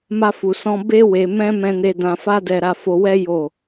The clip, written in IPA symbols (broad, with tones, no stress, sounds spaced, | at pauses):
m a˧ f u˨ s ɔ̃˧ b e˦ w e˧ m ɛ̃˦ m ɛ̃˧ n e˧ d ã˧ f a˦ d ɛ˧ ɾ a˧ f o˧ w ɛ˦ j o˦˨